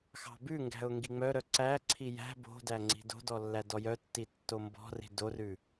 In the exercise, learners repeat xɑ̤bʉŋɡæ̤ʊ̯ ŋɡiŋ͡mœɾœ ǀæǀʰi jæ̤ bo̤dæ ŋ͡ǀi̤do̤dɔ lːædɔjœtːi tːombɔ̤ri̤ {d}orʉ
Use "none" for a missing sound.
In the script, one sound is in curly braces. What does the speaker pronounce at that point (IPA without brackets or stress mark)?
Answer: d